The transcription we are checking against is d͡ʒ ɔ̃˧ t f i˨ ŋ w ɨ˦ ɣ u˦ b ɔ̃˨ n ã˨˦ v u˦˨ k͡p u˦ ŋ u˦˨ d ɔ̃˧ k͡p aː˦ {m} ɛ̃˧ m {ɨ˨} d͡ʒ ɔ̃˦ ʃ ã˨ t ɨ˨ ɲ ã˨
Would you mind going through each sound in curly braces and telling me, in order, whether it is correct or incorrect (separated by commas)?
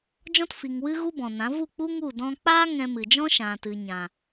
incorrect, correct